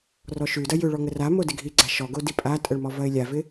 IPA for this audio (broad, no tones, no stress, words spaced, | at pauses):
rɔʃʉdɐ jʏɭɔ ŋəramo dɪɡʱiɡ͡ǀa ʃɔɡo dipʼatʼəɭ mɔvɐɪ̯lʲavɪ